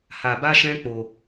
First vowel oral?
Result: yes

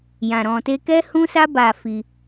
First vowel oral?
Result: no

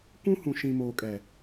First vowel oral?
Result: no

